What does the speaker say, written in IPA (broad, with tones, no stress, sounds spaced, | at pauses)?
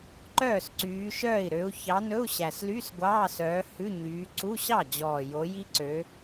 ǃ œː˥˩ s ǀ yː˨˦ ʃ œː˥˩ i̯ ɾ ø˨˦ u̯ ç ɑ˨˦ n ɵ˧˥˧ u̯ ɕ æ˨˩ s l y˧˥˧ s ɡʷ ɑː˧˥˧ s œː˨˦ h ʉ˧˥˧ ɲ yː˨˦ ǀ u˧˥˧ ɕ ɑ˥˩ d͡ʑ ɔː˨˩ j o˨˦ j i˦˥ ǀ ø˨˦